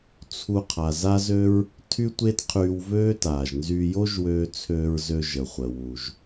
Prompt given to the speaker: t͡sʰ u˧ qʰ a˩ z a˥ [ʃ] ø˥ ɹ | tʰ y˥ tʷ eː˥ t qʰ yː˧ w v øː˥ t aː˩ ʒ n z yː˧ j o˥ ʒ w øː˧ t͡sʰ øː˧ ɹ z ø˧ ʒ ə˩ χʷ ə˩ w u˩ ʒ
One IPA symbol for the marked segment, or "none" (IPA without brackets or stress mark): z